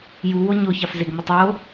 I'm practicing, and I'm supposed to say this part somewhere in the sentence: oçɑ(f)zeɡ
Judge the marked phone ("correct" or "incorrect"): correct